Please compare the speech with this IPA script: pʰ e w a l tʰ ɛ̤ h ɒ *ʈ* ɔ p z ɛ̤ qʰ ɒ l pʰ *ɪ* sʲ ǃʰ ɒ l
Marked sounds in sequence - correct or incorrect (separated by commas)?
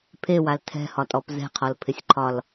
incorrect, correct